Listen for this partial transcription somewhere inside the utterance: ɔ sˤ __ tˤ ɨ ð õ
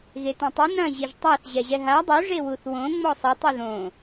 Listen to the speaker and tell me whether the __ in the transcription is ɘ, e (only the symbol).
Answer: ɘ